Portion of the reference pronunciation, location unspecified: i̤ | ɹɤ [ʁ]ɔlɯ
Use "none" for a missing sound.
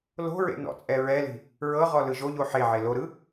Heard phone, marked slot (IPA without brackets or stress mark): ʁ